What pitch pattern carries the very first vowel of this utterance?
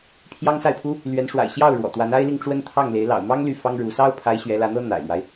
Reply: high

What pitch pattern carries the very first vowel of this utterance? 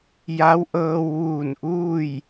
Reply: rising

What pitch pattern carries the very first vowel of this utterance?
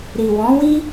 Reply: low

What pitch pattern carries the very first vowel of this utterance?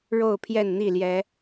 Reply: falling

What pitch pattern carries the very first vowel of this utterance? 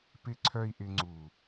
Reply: high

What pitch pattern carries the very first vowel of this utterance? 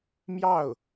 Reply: falling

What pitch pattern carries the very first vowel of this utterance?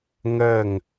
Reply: falling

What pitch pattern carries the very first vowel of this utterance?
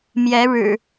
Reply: rising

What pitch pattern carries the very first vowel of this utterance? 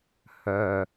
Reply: low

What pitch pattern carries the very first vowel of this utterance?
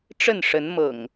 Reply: falling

